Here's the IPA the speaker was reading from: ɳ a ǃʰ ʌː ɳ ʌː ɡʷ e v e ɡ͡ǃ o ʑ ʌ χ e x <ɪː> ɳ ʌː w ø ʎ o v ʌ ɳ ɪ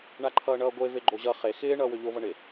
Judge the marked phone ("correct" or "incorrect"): correct